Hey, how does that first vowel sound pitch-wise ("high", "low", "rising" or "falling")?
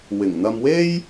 low